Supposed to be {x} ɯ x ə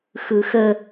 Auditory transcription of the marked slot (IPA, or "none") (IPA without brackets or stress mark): x